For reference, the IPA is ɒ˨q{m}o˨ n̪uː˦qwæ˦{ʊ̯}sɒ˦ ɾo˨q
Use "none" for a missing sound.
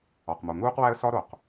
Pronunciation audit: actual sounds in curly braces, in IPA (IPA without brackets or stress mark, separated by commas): m, ə̯